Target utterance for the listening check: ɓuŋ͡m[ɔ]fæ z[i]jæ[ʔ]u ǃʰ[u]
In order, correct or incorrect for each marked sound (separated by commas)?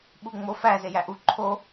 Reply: incorrect, incorrect, correct, incorrect